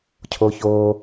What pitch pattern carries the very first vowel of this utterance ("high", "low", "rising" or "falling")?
high